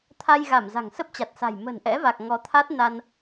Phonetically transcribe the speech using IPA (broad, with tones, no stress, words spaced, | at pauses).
t̪ʰa˧jɣa˧˩m za̤˨˩ŋsə˦˥p̚t͡ɕa˨˩t̚sa̤˨˩j mə̤˨˩nʔɛ̰˧˥va˨˩k̚ ŋɔ˨˦t̪ʰa˦˥t̚ na˧n